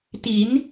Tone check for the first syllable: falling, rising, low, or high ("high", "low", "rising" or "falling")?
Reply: rising